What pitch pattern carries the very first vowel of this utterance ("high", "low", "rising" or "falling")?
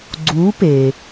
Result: rising